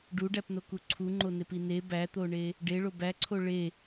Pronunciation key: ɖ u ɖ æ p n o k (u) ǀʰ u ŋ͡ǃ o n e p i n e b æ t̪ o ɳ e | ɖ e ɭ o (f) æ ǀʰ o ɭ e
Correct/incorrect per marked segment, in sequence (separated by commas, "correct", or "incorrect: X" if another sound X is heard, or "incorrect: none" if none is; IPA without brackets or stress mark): correct, incorrect: b